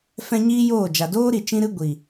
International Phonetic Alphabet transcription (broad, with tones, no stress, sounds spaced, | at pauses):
f ɛ̃˦ ɲ iː˦ j oː˦˨ d͡ʒ a˨ d oː˦ ɾ i˨ t͡ʃ ĩ˦ ɾ ɨ˦ ɡʷ i˨